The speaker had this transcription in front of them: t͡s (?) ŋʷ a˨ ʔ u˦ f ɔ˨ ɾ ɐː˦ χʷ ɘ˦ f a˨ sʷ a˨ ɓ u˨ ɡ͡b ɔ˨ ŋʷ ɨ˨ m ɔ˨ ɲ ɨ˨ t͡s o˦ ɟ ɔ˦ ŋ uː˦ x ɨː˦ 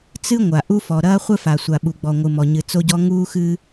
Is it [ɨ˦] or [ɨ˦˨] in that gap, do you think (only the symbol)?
ɨ˦